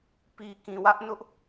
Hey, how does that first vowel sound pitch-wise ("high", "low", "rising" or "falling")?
low